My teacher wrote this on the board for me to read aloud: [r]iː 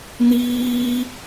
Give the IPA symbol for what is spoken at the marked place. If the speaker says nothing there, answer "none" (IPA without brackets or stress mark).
n